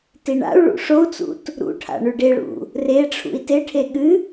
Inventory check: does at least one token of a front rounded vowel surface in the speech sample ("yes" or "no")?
no